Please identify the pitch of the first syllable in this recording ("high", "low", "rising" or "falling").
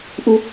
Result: high